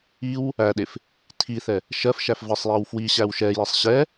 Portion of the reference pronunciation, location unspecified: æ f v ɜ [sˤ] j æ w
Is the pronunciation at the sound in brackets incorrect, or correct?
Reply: correct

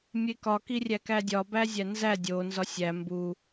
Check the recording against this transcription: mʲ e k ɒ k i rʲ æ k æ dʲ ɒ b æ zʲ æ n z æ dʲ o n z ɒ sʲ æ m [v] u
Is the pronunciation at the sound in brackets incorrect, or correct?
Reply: incorrect: b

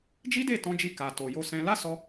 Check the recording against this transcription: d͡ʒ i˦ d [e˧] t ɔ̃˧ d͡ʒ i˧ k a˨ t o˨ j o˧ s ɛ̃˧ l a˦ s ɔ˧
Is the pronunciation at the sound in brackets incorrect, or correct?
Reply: incorrect: e˦˨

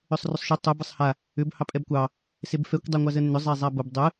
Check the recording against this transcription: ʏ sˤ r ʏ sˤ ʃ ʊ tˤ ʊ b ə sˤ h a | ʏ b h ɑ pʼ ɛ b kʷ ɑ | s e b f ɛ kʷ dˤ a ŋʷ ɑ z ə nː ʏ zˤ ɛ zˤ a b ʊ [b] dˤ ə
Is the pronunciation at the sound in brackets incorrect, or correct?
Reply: correct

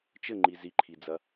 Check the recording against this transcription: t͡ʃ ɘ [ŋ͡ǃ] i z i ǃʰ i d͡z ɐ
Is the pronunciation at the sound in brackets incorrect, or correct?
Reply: correct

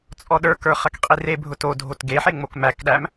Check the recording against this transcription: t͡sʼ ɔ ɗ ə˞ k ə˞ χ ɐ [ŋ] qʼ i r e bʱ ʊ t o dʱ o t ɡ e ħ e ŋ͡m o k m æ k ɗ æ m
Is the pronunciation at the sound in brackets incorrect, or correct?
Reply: incorrect: k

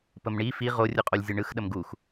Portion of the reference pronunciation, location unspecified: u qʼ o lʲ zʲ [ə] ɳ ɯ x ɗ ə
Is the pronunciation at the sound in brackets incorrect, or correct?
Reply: incorrect: ɯ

